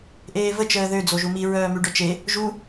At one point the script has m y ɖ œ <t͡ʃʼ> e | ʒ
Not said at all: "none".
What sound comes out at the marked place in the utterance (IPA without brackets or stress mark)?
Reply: t͡ʃ